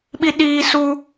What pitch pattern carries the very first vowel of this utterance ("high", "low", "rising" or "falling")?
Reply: high